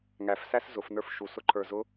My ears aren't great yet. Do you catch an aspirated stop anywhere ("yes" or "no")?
yes